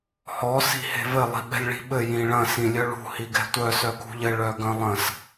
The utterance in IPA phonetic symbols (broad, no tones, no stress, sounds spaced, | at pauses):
h ɔ s i̤ h e̤ v ɘ lˠ i̤ ɓ ɛ̤ lʲ ɭ i̤ ɓ ɘ j ĩ ɭ ɐ̃ s ĩ lʲ œ ɭ ṳ h i ɡ ɛ̤ tʷ œ s œ k ṳ ʎ ɘ ɭ œ ɡ ɐ̃ lˠ ɐ̃ s